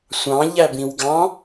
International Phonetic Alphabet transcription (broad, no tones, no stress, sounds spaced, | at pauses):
sʷ ɑ̃ ʎ æ b ĩ w ɡ ɑ̃